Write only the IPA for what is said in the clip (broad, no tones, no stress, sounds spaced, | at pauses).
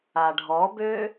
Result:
a ɖʱ ɔ b ø